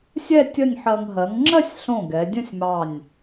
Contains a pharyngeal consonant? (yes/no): yes